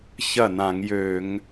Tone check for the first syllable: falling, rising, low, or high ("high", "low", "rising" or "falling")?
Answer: falling